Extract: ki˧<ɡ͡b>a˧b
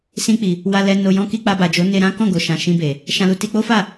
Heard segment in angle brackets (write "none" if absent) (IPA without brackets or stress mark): k͡p